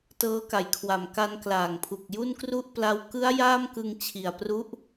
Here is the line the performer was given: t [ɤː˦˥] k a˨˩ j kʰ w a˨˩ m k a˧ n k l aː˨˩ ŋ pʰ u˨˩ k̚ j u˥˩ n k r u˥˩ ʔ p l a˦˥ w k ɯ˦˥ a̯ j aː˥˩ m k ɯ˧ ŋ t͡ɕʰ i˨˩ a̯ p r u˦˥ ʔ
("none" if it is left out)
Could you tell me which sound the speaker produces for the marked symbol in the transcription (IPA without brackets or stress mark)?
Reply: ɤː˦˥